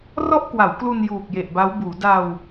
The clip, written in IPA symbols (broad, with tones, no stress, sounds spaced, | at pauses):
r ɔ˥˩ ʔ k w a˩˦ w k l u˧ n j uː˨˩ k̚ j e˨˩ ʔ b a˦˥ w b uː˩˦ d a˧ w